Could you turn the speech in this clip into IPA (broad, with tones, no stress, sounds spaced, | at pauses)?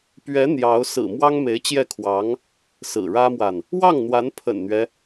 p ɥ ɛ˧˥ n̪ j ɑ˧˥ ʊ̯ s ɹ̩˨˩ m w ɑ˥ ŋ m e˧˥ ɪ̯ t͡ɕ j ɛ˥˩ kʰ w ɑ˧˥ ŋ | s ɹ̩˨˩ ɻ ä˥ m w a˨ n | w ɑ˥˩ ŋ n̪ w a˧˥ n pʰ ə̰˨˩ n n̪ ɥ ɛ˦